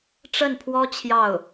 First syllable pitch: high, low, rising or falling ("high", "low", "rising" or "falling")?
falling